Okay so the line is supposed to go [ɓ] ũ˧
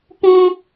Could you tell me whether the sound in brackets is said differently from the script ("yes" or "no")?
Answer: yes